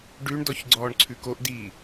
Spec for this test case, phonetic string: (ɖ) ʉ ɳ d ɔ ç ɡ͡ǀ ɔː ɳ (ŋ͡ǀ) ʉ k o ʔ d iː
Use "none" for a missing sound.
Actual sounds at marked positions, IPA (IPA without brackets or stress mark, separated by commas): ɖ, ǀʰ